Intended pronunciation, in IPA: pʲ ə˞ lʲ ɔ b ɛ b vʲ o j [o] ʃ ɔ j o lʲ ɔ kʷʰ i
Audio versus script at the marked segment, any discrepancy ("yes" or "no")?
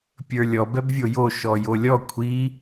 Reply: no